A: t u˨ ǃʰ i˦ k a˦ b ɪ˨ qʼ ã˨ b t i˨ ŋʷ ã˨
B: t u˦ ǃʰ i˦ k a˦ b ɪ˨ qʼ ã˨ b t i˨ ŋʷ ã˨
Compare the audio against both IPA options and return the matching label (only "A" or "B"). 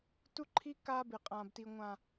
B